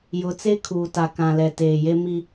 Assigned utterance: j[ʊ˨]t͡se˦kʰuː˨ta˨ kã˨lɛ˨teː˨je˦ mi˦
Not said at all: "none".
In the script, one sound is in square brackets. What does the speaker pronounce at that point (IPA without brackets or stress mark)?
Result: ʊ˨